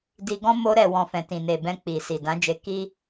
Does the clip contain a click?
no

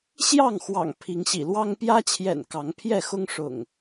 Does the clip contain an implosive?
no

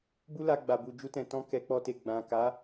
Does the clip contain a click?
no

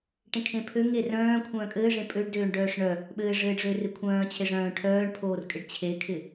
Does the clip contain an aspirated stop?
yes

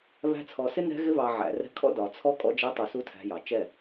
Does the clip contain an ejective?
yes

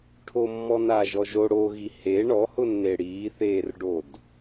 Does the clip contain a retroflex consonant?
yes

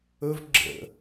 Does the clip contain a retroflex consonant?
no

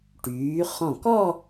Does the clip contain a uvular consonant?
yes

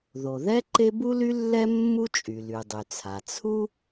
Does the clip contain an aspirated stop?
yes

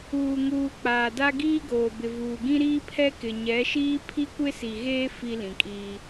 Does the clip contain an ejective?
yes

